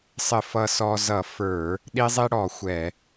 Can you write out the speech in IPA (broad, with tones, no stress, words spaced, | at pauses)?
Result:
sˤɪ˧˩˧ fʌ˧sɔ˧ zʌ˧˩˧ fə˞˧˩˧ | ɗi˧zˤi˧ ɽɔ˧˩˧xʷɛ˧˩˧